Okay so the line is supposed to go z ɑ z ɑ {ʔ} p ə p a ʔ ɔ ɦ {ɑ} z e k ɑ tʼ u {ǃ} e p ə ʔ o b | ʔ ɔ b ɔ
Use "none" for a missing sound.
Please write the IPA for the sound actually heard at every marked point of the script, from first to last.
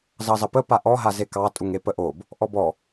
none, a, ŋ

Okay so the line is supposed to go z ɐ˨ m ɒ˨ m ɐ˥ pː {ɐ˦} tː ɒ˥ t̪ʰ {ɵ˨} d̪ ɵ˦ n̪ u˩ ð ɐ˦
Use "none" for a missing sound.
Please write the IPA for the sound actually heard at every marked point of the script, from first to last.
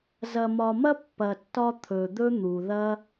ɐ˨, ɵ˩

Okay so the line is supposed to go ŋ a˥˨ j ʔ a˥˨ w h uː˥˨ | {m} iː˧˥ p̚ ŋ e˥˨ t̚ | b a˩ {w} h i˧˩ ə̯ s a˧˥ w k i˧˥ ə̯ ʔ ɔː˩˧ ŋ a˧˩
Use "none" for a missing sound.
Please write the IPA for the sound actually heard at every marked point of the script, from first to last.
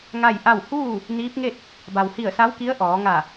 n, w

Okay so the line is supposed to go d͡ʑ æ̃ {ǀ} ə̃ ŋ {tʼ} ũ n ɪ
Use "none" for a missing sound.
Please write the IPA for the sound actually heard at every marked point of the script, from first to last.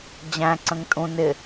ǀ, tʼ

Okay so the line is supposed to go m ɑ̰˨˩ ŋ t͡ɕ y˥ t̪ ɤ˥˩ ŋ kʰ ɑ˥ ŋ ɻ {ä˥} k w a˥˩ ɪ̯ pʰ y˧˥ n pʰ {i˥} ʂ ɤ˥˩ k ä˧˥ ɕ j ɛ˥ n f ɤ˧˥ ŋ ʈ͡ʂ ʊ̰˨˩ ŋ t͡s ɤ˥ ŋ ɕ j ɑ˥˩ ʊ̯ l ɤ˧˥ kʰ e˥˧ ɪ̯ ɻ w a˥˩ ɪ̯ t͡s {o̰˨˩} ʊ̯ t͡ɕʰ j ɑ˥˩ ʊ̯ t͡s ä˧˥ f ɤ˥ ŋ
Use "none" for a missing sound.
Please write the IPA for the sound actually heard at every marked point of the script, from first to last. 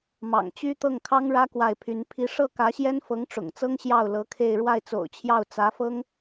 ä˥, i˥, o̰˨˩

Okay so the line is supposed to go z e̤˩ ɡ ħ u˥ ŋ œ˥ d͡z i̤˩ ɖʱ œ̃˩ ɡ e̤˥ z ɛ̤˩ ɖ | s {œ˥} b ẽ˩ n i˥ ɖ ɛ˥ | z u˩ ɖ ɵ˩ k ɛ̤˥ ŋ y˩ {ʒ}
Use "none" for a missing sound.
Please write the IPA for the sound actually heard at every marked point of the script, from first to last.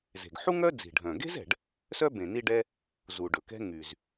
œ˥, z

